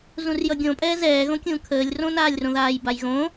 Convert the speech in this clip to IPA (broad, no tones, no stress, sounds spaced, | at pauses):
z ũ r j ʌ ɡʲ õ pʼ ɛː z ɛː ɣ õ kʲ ũː kʰ əː lʲ r õ n aː lʲ r õ ð aː j b a j ɣ õ